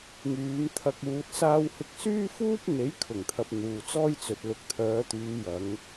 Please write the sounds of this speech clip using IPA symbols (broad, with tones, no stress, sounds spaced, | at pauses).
ŋ yː˨˧ m t̪ʰ ɐ˧ k̚ uː˨ t̚ s aː˧ w h ɪ˧ k̚ s yː˥ f uː˥ p̚ n̪ e˨˥ j kʰ ʊ˨˩ ŋ t̪ʰ ɐ˨ p̚ n̪ uː˨ t͡s ɔː˥ j t͡s ɵ˨ t̚ l ʊ˨ k̚ t̪ʰ œː˨˧ t̪ yː˨˧ j ɐ˨˧ ŋ